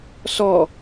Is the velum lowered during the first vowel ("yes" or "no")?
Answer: no